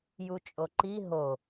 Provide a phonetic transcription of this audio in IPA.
jut͡ʃʼoǃi ɦo

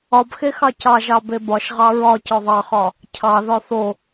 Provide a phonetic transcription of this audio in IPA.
ɒbxe xɑcɑʒɑ bebɒʃʁɑ ɹɒ cɒðˤɑχɒ | cʰɑðɒ θo

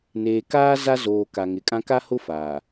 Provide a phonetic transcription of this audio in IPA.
neː˨kaː˦ za˦zoː˨ ka˨ŋɪ˨kʼã˦ ka˦hʊ˦ faː˨

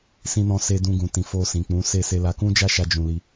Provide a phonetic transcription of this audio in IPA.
sĩ˧nɔ̃˧ se˧ dũ˧ɡũ˨tĩ˨ fo˧sĩ˨k͡pũ˨˦se˦˨ se˧la˧kũ˦ d͡ʒa˦ʃa˧ d͡ʒũ˨ li˧

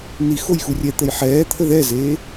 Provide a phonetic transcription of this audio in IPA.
ni xojxurʲɛt̪əj ħɛːt̪ʰə ðɛzeː

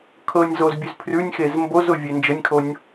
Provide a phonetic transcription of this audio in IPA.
kʰɤnʲzoz bʲʉzpʰrʉnʲxez mbozʊ vʲend͡ʒənʲkʰonʲ

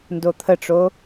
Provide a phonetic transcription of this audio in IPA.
ndot̪ʰəʈ͡ʂo

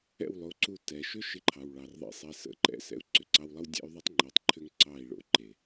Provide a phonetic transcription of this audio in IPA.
ɛ̰˦˨wlˠo˨˦ǀu˧ tɛ˨ʃʏ˦ ʃɪ˧ǃʰɑ˨w ɭɑ˨rðˤḭ˧sˤe˧ sə̰˧ǃɛ̰˧ sɛ̰˧u̯ǀʏ˨ǀɑ˧wlˠə˦w dʲɛ̰˦y̯ðˤə˦tˤŋ͡ǃe˨tˤ ǃʰʏ˦ŋǀɑ˦˨i̯ɭo̰˧ ǃe˨

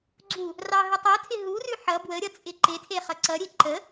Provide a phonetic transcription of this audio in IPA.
ɡ͡ǀu | rɑɦətˤotʰɪ ɦurʉ ħʌ bwəɾʲʌ t͡sʼɪǃɪtʰe χʌǀʌɾʲe ǃə

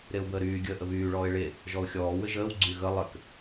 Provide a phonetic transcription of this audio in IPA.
ɾeʊ̯bəːɾyː ɡʲəːʔəβyː ɭɔːɪ̯ɭe | ʒɔʊ̯xʲɔː wɘʒəːw ɡ͡ǀyɣə lˠɘk

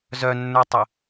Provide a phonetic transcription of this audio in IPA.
zœnːə˞tˤə

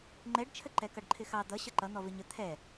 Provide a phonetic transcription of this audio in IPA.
ŋ͡ǃɛɖt͡ʃʰə ǃɛkʌɖǃʰɪxɑ d̪ʌ ɕʌǃʌ n̪ɔvɪɲə t̪ʰɛ

